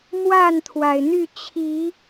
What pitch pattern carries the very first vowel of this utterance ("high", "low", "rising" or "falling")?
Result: falling